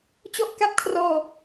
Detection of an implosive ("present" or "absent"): absent